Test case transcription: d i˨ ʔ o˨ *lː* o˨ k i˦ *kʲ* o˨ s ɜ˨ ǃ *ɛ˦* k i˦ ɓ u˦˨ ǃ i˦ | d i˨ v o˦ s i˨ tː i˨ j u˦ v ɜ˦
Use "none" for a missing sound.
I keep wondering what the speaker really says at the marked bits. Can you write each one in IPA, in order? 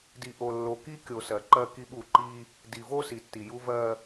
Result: lː, kʲ, ɜ˦

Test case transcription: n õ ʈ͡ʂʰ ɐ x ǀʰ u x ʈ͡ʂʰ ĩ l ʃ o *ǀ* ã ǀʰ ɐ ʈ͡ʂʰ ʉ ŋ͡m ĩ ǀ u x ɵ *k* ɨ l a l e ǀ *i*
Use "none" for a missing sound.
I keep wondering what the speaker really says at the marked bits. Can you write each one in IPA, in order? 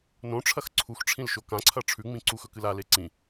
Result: k, k, ĩ

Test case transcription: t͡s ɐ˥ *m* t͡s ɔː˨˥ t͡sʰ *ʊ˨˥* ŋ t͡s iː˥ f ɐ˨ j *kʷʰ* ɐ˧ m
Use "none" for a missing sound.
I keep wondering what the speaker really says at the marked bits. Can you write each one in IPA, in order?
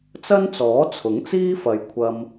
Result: n, ʊ˨˥, kʷʰ

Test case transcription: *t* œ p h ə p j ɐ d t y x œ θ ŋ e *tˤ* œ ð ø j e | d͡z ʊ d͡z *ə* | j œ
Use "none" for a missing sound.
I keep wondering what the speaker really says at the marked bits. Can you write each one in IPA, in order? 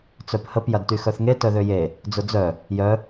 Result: t͡s, t, œ

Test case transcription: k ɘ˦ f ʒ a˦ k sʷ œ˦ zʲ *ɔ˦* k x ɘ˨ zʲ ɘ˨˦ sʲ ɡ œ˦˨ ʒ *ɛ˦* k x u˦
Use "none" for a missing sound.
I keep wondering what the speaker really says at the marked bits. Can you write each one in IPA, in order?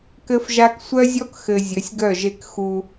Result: ɔ˦, e˦

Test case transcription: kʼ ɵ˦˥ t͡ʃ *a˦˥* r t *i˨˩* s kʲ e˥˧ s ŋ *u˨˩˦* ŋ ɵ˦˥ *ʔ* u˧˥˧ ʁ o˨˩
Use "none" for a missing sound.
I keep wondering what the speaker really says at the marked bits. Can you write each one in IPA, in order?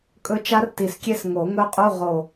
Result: a˦˥, i˨˩, o˨˩˦, qʼ

